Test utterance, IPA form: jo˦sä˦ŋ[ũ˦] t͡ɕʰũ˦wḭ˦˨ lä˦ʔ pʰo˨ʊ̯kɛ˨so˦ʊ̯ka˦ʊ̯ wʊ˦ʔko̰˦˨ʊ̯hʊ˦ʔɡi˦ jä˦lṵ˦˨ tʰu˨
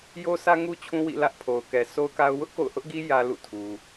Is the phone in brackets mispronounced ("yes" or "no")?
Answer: yes